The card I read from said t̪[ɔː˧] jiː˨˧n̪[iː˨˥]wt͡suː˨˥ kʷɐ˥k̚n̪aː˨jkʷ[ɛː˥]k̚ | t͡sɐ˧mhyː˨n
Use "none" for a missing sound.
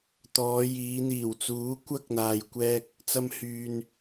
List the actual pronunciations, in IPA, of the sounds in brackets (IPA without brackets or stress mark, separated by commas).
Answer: ɔː˨˧, iː˨˩, ɛː˧